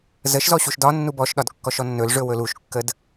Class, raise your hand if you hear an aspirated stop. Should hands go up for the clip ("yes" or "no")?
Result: no